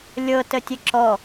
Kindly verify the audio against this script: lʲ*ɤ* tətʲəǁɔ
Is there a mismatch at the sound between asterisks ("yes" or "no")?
no